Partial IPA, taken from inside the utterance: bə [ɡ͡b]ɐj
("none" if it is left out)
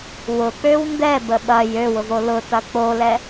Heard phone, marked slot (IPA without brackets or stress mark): ɓ